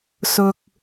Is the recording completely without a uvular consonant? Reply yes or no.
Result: yes